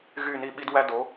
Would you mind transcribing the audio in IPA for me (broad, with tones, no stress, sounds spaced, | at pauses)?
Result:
ɣ y˧˩ n i˧˩ ɓ i˧ d w æ˧ d o˩˧